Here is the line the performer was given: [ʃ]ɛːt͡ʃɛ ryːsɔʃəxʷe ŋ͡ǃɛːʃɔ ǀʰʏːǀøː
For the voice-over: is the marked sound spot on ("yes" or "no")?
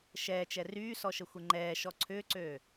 yes